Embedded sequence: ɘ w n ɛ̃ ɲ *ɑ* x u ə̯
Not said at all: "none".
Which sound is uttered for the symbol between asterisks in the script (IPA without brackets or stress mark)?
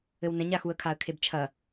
a